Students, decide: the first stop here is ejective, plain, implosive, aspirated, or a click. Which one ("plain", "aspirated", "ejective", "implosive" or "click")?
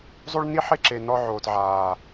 click